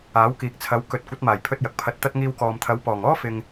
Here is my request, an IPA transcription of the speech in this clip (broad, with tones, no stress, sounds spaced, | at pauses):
aː˨˥ w k iː˨ k̚ t͡sʰ ɐ˨˥ w k ɵ˨ t̚ kʷ ɐ˨˥ t̚ m aː˨˩ j pʰ ɵ˧ t̚ j ɐ˨ k̚ pʰ ɐ˨˥ t̚ t̪ ɐ˥ t̚ ŋ iː˧ w k ɔː˨ m t̪ʰ ɐ˨˥ w p ɔː˨˩ ŋ ɔː˥ f ɪ˨ ŋ